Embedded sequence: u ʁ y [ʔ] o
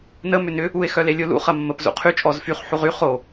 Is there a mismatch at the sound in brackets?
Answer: yes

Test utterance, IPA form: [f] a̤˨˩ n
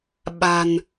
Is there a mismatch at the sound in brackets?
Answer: yes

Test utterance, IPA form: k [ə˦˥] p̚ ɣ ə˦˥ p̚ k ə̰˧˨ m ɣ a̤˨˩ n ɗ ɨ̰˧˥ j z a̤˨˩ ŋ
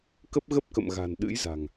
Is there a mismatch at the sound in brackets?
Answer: no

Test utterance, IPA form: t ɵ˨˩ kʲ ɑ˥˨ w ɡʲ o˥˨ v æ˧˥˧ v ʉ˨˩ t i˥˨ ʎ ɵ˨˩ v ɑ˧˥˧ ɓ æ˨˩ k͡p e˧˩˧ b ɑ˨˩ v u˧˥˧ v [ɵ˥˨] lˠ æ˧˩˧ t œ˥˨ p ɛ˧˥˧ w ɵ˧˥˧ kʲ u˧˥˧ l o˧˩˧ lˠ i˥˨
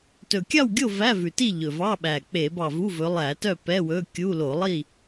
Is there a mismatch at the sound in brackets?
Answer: yes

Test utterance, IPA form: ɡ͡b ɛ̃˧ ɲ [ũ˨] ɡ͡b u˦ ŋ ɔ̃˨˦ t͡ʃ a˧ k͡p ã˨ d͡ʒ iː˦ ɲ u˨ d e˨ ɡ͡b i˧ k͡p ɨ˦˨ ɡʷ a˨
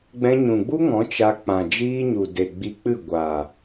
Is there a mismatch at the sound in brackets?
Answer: no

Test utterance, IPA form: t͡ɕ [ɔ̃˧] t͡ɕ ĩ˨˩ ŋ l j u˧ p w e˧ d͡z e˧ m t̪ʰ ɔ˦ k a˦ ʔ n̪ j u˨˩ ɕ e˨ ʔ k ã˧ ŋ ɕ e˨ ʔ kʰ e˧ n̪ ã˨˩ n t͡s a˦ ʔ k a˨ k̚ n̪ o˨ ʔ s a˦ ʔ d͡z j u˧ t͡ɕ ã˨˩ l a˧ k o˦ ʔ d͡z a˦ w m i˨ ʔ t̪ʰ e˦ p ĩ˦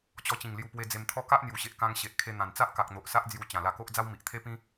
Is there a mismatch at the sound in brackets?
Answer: yes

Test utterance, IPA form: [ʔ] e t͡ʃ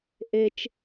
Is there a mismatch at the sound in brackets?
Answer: no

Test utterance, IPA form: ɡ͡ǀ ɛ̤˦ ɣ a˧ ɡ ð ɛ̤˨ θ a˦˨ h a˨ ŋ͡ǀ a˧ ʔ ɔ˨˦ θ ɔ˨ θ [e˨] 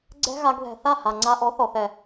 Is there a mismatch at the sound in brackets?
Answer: yes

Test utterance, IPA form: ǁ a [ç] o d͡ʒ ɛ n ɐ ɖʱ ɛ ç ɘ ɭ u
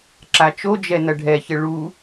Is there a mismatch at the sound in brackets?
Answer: yes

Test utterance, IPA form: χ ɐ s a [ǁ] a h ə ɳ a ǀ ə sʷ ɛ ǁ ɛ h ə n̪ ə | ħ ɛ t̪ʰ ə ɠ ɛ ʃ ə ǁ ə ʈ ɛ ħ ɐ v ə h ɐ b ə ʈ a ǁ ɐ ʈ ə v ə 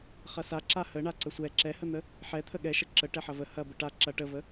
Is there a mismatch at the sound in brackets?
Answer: no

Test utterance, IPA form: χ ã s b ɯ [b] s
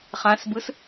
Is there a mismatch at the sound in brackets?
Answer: yes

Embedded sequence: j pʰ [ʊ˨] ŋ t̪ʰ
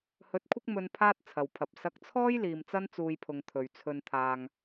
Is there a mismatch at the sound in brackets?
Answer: no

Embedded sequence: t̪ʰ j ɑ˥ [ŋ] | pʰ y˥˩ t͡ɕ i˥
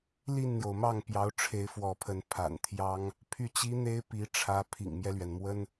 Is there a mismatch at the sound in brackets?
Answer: no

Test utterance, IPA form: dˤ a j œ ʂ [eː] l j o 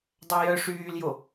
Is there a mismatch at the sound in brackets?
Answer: yes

